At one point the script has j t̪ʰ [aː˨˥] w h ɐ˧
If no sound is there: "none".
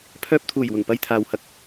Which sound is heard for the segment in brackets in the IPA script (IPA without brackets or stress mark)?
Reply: aː˨